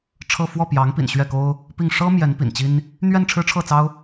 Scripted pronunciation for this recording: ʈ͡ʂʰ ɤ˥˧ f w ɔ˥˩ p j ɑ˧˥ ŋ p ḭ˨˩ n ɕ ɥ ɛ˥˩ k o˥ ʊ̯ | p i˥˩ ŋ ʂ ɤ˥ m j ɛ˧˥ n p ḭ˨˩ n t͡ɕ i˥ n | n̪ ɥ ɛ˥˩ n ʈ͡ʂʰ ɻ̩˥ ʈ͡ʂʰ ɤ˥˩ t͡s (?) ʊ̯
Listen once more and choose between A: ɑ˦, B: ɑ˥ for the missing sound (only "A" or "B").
B